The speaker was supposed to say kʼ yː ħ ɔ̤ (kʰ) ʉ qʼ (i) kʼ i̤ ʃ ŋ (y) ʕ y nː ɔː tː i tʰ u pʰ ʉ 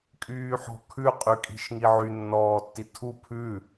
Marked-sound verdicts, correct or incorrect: correct, incorrect: y, incorrect: i

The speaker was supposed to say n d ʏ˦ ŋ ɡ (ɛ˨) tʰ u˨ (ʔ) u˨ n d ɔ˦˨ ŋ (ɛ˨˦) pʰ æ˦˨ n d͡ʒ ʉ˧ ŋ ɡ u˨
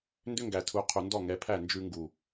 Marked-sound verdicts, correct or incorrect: incorrect: æ˨, incorrect: qʰ, correct

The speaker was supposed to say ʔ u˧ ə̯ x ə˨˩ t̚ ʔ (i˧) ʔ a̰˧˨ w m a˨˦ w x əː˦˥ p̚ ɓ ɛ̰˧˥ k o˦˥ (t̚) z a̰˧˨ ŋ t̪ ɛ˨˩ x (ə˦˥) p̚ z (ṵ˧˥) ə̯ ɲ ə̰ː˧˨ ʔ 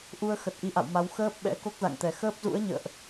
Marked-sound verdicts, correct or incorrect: correct, incorrect: k̚, incorrect: əː˦˥, correct

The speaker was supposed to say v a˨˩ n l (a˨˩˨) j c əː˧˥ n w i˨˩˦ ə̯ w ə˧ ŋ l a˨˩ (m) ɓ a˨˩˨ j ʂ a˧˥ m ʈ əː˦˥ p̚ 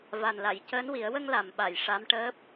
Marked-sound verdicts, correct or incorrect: correct, correct

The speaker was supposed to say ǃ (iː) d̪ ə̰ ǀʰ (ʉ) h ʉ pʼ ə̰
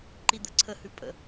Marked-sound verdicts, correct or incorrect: incorrect: i, incorrect: ə

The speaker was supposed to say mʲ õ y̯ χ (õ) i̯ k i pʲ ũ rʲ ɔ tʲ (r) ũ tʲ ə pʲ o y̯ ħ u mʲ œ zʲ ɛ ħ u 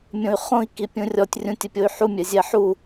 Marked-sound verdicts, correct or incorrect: correct, incorrect: rʲ

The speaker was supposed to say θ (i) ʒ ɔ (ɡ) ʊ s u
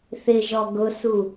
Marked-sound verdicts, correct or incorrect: incorrect: ɪ, correct

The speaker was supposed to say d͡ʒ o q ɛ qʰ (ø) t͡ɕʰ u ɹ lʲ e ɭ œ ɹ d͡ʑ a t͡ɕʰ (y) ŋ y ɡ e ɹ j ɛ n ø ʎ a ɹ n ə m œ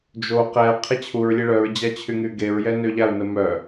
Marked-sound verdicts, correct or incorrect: incorrect: e, correct

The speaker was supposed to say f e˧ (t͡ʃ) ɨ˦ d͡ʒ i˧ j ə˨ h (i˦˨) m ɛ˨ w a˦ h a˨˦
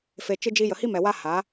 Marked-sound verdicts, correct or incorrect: correct, incorrect: i˦

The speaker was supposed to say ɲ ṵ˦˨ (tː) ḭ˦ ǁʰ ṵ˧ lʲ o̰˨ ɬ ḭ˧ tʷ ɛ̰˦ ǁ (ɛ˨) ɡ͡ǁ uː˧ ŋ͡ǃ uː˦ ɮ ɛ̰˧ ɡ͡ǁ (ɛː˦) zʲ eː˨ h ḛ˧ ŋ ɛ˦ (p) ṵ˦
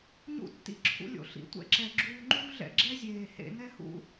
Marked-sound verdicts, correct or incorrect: correct, correct, incorrect: ɛ˦, incorrect: h

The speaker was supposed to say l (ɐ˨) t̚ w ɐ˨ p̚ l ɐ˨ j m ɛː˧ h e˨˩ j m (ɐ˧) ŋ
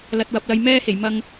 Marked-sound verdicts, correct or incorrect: correct, correct

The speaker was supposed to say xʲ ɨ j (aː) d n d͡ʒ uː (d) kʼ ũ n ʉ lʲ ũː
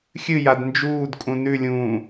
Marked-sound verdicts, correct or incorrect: incorrect: a, correct

